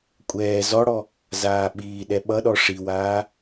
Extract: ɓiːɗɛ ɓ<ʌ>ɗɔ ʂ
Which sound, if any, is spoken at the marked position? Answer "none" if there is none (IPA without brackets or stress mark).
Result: ʌ